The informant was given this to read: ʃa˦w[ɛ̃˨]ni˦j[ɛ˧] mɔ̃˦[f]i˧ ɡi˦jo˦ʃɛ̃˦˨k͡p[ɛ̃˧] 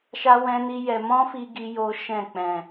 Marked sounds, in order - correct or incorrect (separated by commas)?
incorrect, correct, correct, incorrect